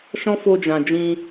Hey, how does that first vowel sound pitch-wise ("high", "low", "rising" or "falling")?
high